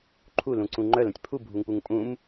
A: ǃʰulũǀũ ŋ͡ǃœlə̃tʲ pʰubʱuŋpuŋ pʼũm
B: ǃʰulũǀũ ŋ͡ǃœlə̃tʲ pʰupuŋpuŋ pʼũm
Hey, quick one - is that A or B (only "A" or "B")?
A